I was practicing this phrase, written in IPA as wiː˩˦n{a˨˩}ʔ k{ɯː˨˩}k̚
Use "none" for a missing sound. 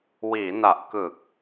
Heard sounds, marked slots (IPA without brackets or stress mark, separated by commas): a˨˩, ɯ˨˩